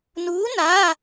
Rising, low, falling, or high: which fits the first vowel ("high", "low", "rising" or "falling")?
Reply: rising